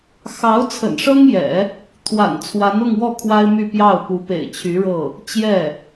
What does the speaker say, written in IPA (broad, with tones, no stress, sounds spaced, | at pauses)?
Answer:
x ɑ˧˥ ʊ̯ t͡sʰ ə̰˨˩ n ʂ ɤ˥ ŋ j ɛ̰˨˩˦ | t̪ʰ w a̰˨˩ n t͡sʰ w a˧˥ n ʊ˥˧ ŋ w ɔ˥˩ kʰ w a˥ ɪ̯ m y˥˧ p j ɑ˥˩ ʊ̯ p u˧˥ p ḛ˨˩ ɪ̯ t͡ɕʰ y˧˥ ɻ ɤ˥˩ | t͡ɕ j ɛ˥˩